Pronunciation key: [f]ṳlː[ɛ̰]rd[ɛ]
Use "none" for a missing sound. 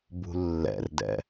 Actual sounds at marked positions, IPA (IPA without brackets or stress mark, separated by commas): b, ɛ̰, ɛ̰